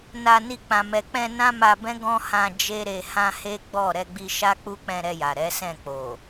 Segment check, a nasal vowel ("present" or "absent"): present